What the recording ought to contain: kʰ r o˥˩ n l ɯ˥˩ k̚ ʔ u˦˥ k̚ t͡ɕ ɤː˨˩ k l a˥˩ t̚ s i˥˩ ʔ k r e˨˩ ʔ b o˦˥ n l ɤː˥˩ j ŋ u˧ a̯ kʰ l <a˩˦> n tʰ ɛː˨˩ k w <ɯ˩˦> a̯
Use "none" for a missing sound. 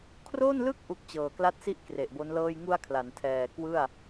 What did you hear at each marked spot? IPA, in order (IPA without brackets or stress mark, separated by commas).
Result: a˩˦, ɯ˥˩